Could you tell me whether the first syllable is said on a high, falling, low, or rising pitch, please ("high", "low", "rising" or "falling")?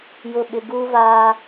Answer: falling